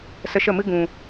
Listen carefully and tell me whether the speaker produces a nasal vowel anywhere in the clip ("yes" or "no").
yes